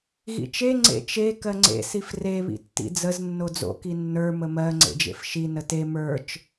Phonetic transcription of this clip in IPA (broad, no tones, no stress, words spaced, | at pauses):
ɣḭt͡ʃe ŋ͡ǀḛt͡ʃe kɜŋ͡ǀḛ sifre βḭtːḭd͡zəz nːod͡zo̰ kinːə˞ məmɜ ŋ͡ǀḛd͡ʒḛfʃi nəte mə˞t͡ʃ